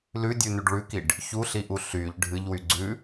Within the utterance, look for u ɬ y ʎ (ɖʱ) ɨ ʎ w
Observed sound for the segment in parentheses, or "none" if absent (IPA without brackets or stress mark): ɖʱ